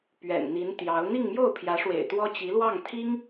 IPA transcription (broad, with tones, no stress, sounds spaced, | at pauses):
p ɥ ɛ̰˨˩ n n̪ i˧˥ n t̪ j ɑ˧˥ ʊ̯ n̪ i˥˧ ŋ m j o˥˩ ʊ̯ pʰ j ä˧˥ ʂ w ḛ˨˩ ɪ̯ t̪ w ɔ˥ t͡ɕ i˧˥ l w ɑ˥˩ ŋ t̪ʰ i˥ ŋ